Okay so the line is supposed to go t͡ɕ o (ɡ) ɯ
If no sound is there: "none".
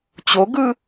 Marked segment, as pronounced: ɡ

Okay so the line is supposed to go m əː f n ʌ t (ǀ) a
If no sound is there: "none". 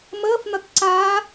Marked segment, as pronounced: ǀ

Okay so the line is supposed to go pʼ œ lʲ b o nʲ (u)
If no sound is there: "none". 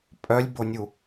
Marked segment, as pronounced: u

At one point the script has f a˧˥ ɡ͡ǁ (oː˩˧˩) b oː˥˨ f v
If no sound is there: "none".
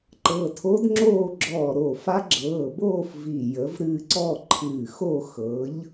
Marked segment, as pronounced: ɤː˩˧˩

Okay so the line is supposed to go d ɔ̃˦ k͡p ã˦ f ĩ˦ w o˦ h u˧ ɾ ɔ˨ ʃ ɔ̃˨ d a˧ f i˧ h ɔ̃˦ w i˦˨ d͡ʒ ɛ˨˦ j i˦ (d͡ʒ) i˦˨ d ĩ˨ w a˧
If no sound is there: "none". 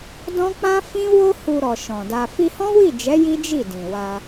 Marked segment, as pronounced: d͡ʒ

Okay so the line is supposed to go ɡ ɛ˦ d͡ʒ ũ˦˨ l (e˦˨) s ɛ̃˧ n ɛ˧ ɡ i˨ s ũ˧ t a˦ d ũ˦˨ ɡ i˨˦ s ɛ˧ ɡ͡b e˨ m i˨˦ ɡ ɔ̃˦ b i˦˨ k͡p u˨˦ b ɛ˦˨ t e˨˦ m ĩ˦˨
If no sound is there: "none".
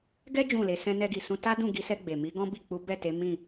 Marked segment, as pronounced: e˧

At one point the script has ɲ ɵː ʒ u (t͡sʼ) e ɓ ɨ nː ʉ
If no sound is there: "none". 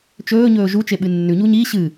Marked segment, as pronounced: t͡ʃ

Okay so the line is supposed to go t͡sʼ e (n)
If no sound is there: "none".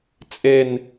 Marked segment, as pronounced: n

